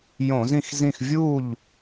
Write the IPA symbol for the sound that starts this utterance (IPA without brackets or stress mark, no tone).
j